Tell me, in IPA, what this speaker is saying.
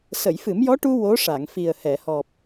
sə˨˩˨jfɨ˨˩˦mjɔ˧˥ʈu˧ wo˧˥ʂa˨˩˨ŋ fi˨˩ə̯hɛ˨˩˨hɔ˨˩p̚

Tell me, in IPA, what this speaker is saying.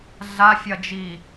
ɮafʲɐd͡ʒiː

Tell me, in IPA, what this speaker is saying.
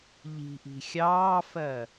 ʎi̤ʔi̤ xʲɑːfɜ

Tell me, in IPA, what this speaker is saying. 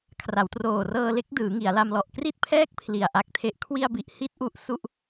kʰra˩˦wtroː˨˩rɤː˧ le˦˥k̚dɯː˩˦ ŋi˩˦a̯la˧m lɔ˨˩ʔkri˥˩t̚pʰɛː˥˩k̚ pʰli˨˩a̯ʔa˦˥k̚tʰe˦˥ʔ kʰwi˧a̯bi˨˩ʔhi˦˥t̚ ʔu˦˥ʔsu˥˩ʔ

